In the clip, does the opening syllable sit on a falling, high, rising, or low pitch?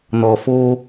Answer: low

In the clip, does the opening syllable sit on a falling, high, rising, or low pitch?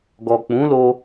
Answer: low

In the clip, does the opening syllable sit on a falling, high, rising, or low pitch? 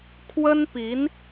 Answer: high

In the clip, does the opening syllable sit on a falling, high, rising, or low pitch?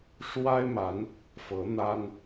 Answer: high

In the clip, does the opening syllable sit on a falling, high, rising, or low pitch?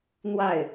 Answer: falling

